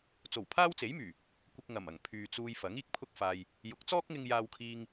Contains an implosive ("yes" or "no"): no